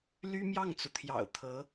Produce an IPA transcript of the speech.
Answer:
l y˥ m j ɑ˥˩ ŋ t͡s u˩ t̪ʰ j ɑ̰˨˩ ʊ̯ t̪ʰ ɤ˧˥

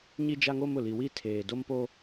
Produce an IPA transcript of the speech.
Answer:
ɲ i˦ d͡ʒ a˦ ŋ o˦ m ʊ˨ l i˨ w i˦˨ tʰ eː˨ d o˦ m p o˦

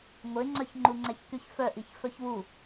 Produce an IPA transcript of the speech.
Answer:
ŋʷ e ŋ͡ǀ œ ç ŋ͡ǃ u ŋ͡ǀ ɛ ç k y ç f œ ʔ i ç f œ ç w u

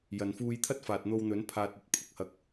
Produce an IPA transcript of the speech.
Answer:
j ɐ˨ n f uː˧ j t̪ʰ ɐ˥ t̚ f aː˨ t̚ n̪ o˧ w n̪ ɵ˨˥ n pʰ aː˧ t̚ ɐ˧ t̚ pʰ ʊ˧ k̚ h ɐ˧ k̚

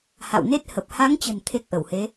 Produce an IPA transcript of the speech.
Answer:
h a̰˧˨ w n e˦˥ t̚ h ə˨˩ p̚ h a˨˦ ŋ t͡ɕ ə̤˨˩ n t̪ʰ e˦˥ k̚ ʔ ə˧˩ w h e˨˦

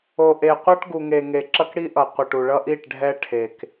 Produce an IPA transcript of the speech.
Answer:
o˨ ʔ e˨ qʷ a˦ ʈ ɡ u˨ ŋ e˨ ŋ e˨ ǁ ʌ˦ k ɽ i˦ ʔ ʌ˨ qʷ ʌ˨ ʈ u˨ ɭ ʌ˦ ʔ i˦˨ ʈ ɖʱ ɛ˦ ʈʰ e˨ k

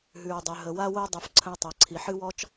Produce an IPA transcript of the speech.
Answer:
ɦ ʉ˩ ɹ dˤ ʉ˩ ɦ ə˩ w a˧ w o˧ dˤ ʉ˩ f ǀʰ ə̃˧ w tˤ ɤ˩ ǀʰ i˩ ħ ɨ˥ w ɔ˥ t͡ʃ

